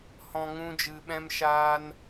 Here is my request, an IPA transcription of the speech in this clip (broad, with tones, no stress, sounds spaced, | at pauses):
h ɔ̃˧ ŋ ũ˦ d͡ʒ ɨ˧ ɓ ɛ̃˦ m ʃ aː˦ n